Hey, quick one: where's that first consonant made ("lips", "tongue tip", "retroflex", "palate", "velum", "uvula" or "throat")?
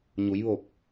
palate